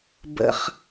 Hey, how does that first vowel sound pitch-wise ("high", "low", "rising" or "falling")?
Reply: high